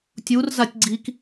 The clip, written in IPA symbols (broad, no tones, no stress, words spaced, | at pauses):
tʲurzatʲ ɡ͡ǀik